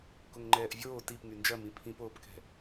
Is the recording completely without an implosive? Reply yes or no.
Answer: yes